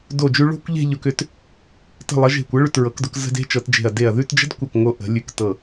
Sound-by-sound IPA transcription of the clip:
d o˧˩ d͡ʒ ʉ˧ ɭ o̤˥˧ kʷ ʎ e̤˥˧ ʎ ʊ˧ k ʏ˧ t | t ə̤˧˩ lˠ ə˩˧ ʒ e̤˧˩ kʷ ɤ˥ ɭ ʉ˧˩ t ɹ ɤ˩˧ k d ʊ˩˧ k z ə̤˧ d e̤˥ t͡ʃ ɤ˩˧ t d͡ʒ e̤˧˩ ɐ̯ d e˧˩ ɐ̯ ð ʉ˥˧ t d͡ʒ ə̤˥ d kʷ ɤ˧˩ k ŋ o˧ ʔ ə̤˩˧ lʲ ʉ˧˩ k t ɤ˧˩

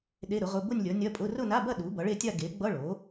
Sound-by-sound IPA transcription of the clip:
ɗ e˧˥˧ ɾ ʊ˩˥ ʁ ʊ˧˥˧ b ʊ˥˧ nʲ lʲ ʌ˩˥ nʲ ɐ˧˥˧ pʼ ʊ˧˥˧ r ʊ˥˧ n a˧˥˧ b ɐ˥˧ ɗ u˩˥ b ʌ˩˥ ɭ e˥˧ tʲ a˥˧ ɡ e˩˥ ɡ͡b ʌ˧˥˧ ɭ o˩˥

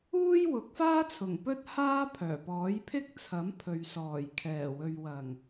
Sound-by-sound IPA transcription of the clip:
uː˥ j w ʊ˨˥ k̚ f aː˥ t͡sʰ ʊ˨˩ ŋ p ɵ˥ t̚ h aː˥ pʰ œː˨˩ p ɔː˨˥ j pʰ ɪ˥ k̚ t͡sʰ ɐ˨˥ m pʰ ɵ˨ ɥ s ɔː˨˩ j kʰ ɛː˨˩ w ɵ˨ ɥ w ɐ˨˩ ŋ

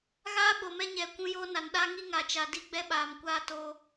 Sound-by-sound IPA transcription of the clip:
ɣ aː˦ ɓ o˨ m ɛ˦ ɲ ɛ˨ kʷ ũ˦ j oː˦ n a˨ n ɗ a˦ ŋ i˦ ŋ a˨ t͡ʃ a˨ d i˦ ɡ͡b ɛ˦ ɓ aː˨ m kʷ aː˦ t o˦

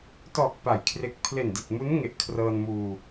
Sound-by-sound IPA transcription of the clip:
t ɔː˨˩ k̚ p a˩˦ j kʰ r e˨˩ k̚ pʰ l e˨˩ n d i˨˩ t̚ m u˦˥ n ŋ e˨˩ ʔ kʰ r ɤː˧ n m uː˧

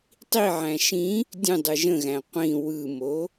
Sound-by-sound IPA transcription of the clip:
tˤ i ʕ æ̃ ʃ ĩ | dʲ ə̃ dˤ ɯ ʒ ə̃ ɣ æ̃ qʷ ĩ w ɯ m o

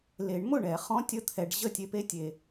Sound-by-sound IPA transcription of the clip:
l e˨˩˦ ɳ m ʊ˥˩ ɳ ɛ˨˩˦ χ ɔ̃˧˥˧ tʲ ə˥˩ t̪ʰ ɛ˨ ɖ ʑ ə˥˩ tʲ e˥ p e˥ tʲ e˨

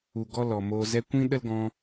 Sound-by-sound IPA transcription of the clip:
u˨ ɡ ɔ˧ l ɔ˨ m oː˧ z ɛ˧ kʷ ĩ˦ ɗ ə˦ l ɡ ɔ̃˧

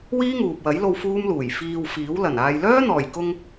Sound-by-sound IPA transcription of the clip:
w iː˥ ŋ uː˨ p̚ w ɐ˨˥ j l o˧ w f uː˥ m l uː˨˩ j f iː˨ w f iː˨˥ w l ɐ˨˩ n aː˨ j l œː˥ n̪ ɔː˨˩ j k ʊ˧ ŋ

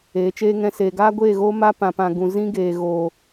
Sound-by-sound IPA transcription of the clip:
eː˨˦ t͡ʃ eː˦ ŋ ɛ̃˦ s eː˧ ɡ aː˦ ɡʷ eː˦˨ ɣ oː˦ m a˦ p ã˨ p ã˨ ɡ ũ˨ z ĩ˦ ɡ eː˨ ɣ oː˨

